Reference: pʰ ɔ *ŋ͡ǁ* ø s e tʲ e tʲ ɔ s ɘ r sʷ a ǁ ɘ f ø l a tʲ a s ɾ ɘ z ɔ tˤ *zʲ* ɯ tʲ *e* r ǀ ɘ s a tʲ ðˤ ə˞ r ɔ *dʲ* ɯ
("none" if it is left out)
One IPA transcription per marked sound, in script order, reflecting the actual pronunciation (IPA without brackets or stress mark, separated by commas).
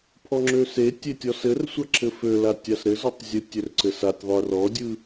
ŋ͡ǁ, zʲ, ø, dʲ